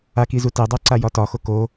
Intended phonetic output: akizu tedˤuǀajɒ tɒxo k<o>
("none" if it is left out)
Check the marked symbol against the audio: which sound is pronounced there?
o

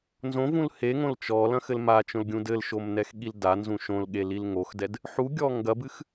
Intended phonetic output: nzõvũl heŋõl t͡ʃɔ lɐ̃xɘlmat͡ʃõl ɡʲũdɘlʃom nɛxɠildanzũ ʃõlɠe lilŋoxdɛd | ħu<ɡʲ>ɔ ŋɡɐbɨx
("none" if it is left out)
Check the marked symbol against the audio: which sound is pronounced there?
ɡʲ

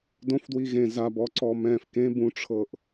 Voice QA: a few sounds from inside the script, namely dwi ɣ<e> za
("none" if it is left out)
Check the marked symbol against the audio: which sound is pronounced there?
ẽ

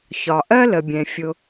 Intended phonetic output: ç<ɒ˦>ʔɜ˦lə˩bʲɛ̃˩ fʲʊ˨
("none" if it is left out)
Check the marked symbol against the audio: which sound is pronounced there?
ɒ˩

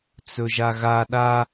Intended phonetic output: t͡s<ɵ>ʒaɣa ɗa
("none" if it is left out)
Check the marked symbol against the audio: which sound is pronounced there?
ɵ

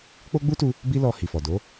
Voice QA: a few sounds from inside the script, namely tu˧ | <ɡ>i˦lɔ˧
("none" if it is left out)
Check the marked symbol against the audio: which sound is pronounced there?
b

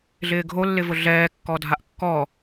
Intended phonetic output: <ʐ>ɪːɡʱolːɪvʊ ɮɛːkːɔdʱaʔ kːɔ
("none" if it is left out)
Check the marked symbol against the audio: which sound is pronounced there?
ɮ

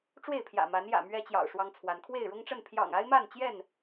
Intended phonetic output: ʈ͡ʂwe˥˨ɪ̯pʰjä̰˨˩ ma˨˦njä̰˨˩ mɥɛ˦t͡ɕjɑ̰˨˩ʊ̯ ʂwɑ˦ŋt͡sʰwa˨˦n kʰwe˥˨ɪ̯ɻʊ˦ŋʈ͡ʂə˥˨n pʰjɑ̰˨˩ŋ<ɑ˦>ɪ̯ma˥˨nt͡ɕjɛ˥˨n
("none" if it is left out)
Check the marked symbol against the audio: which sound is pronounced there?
a˦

